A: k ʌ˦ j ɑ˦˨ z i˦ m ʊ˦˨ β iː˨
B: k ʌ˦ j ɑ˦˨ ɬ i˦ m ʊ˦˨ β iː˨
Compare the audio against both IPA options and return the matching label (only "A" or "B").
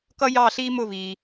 B